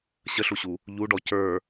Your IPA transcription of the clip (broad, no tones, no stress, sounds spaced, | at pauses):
ɕ ə ɬ u ɕ u | ʎ u ɖ ɔ c ə˞